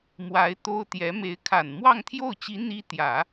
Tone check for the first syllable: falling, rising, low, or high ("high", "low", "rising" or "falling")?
rising